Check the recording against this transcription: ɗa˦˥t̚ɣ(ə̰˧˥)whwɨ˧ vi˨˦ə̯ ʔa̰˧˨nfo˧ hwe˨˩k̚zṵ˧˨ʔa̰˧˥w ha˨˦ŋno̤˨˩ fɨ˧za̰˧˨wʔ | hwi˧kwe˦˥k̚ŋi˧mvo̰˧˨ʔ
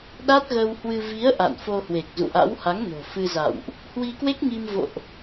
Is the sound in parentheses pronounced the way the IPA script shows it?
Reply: no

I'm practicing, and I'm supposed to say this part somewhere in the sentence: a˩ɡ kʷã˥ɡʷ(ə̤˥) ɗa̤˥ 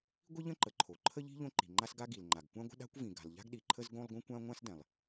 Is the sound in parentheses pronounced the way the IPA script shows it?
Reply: yes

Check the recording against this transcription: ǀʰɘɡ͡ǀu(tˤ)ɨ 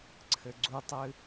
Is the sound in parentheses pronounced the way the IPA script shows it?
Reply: yes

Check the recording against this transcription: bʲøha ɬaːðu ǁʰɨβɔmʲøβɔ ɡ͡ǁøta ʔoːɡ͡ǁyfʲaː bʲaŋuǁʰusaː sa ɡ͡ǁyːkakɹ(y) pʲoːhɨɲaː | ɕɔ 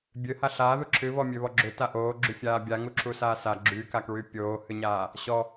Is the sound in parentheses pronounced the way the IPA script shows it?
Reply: yes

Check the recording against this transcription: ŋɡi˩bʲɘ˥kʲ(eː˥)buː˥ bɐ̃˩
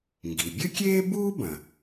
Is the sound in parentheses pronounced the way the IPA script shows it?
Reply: yes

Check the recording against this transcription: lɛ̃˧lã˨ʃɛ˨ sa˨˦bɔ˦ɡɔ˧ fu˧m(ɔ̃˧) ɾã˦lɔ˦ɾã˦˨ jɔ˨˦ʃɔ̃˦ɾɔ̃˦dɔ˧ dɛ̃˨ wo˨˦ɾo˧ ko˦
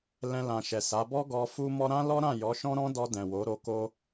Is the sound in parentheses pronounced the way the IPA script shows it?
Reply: no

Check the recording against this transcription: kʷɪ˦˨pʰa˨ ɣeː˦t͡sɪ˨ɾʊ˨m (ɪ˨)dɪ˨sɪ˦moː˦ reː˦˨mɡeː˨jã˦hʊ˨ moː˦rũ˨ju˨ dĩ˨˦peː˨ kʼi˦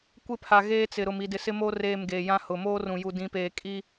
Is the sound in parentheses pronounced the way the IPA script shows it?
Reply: no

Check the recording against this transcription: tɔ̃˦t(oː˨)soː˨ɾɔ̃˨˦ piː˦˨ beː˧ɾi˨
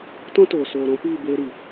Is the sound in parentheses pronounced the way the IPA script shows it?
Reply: yes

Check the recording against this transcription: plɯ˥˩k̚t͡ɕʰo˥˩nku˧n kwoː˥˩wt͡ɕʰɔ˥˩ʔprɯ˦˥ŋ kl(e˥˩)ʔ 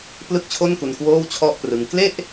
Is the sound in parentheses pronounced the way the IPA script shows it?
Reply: yes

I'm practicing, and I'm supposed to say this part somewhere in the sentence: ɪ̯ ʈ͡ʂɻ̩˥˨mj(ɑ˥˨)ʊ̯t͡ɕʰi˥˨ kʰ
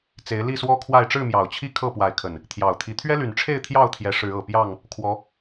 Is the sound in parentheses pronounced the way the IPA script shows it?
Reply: no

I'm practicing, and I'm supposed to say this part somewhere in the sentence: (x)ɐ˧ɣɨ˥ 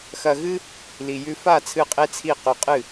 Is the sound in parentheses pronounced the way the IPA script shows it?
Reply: yes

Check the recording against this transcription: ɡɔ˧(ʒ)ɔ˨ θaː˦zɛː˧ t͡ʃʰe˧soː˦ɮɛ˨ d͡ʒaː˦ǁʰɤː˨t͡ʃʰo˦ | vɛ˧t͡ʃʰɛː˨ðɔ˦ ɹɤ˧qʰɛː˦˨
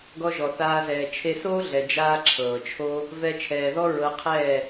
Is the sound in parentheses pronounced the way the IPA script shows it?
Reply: yes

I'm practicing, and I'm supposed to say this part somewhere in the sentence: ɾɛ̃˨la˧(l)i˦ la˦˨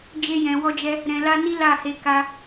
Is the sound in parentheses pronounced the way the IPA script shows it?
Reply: no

